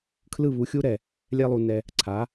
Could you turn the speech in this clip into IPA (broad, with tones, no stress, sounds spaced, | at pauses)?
kʰ l ɯ˥˧ β u˧ xʲ u˥ ɾ ɛ˧˩ | lʲ ɛ˥ lˠ u˧ n ɛ˧ | ǀʰ a˩˧